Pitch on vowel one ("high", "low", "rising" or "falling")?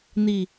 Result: low